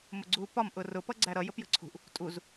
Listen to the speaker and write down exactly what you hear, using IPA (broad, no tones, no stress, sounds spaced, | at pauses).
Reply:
m ʊ ɡ͡ǀ uː p ɒ m ʔ ʊ r ʊ p ʌ ɡ͡ǀ æ ɾ ʌ j ə p j ə̤ ǀʰ ṳ ʔ | tʼ u z